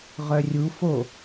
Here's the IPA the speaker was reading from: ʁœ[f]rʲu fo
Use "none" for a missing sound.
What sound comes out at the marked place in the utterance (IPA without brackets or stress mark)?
none